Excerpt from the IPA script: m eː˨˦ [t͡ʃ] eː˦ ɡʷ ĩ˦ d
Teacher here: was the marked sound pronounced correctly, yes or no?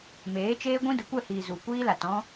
yes